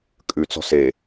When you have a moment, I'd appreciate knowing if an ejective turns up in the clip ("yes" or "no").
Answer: yes